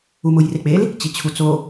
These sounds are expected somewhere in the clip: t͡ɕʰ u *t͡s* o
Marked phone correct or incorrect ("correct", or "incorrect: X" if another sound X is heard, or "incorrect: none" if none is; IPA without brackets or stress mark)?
correct